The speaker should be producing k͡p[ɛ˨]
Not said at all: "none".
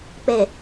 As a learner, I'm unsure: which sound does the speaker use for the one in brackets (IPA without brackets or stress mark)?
e˨